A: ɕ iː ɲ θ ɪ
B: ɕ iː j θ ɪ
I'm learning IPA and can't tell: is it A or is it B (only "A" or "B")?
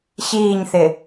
A